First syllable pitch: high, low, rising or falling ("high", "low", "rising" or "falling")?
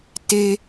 high